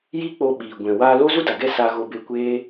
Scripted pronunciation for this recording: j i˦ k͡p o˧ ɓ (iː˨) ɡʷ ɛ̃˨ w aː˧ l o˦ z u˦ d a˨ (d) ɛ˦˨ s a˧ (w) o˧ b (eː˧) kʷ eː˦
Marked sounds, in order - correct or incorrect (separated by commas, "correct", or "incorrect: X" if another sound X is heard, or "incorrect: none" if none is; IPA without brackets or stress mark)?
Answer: correct, incorrect: ɡ, incorrect: ɣ, incorrect: e˧